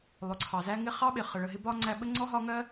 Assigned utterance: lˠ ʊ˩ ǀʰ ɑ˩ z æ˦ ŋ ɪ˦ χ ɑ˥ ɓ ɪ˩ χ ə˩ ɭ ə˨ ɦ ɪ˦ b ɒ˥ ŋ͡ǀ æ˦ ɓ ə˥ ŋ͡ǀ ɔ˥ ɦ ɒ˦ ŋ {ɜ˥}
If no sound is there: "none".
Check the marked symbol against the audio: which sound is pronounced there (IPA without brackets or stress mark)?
ɜ˥